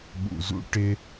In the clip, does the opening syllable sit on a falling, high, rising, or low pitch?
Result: low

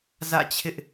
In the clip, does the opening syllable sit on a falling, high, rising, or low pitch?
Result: falling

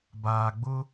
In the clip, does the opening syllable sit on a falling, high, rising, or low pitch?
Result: low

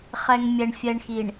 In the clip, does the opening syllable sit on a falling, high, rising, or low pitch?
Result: low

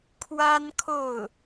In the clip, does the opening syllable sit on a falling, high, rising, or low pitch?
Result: high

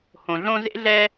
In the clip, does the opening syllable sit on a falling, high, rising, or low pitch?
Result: low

